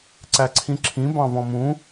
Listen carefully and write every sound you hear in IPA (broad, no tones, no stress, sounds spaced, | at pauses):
ǀ æ ǀʰ ĩ ǁʰ ĩ b ɑ̃ v ɔ̃ m ũ